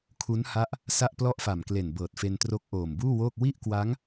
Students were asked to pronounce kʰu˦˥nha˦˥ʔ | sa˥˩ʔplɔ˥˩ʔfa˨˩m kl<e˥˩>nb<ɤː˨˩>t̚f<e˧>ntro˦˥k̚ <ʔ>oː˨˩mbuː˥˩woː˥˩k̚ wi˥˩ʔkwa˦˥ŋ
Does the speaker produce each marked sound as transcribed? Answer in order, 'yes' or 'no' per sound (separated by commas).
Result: no, yes, yes, yes